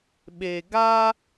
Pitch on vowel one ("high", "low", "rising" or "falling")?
low